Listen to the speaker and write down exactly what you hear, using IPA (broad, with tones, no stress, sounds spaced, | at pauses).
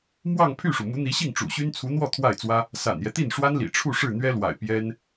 m w ɑ˥˧ ŋ pʰ y˥˩ ʂ u˩ m u˧˥ n̪ i˧˥ ɕ i˥˩ ŋ ʈ͡ʂ ṵ˨˩ ɕ y˥ n t͡sʰ u˧˥ n̪ w ɔ˥˧ t̪ʰ w a˥˩ ɪ̯ t͡s w ä˥ | s a̰˨˩ n j ɛ˦ t̪ i˥˩ n ʂ w a˥ n l ḭ˨˩ ʈ͡ʂʰ u˥˧ ʂ ɻ̩˥˩ n̪ ɥ ɛ˥ l w a̰˨˩ ɪ̯ p j ɛ˥ n